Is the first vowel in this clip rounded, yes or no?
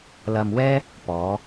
no